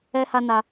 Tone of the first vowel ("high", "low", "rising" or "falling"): high